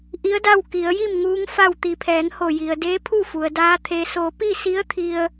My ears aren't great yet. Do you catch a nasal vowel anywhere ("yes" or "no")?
no